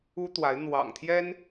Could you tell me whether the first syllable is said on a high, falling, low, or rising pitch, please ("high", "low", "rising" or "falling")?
high